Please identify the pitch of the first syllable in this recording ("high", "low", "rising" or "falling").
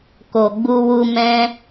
low